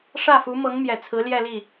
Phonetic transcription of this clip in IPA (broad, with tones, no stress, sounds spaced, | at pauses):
ʂ ä˥˩ f u˧˥ m ɤ˧˥ ŋ m j ɛ˨˩ t͡sʰ ɹ̩˧˥ l j ɛ˥˧ l i˥˩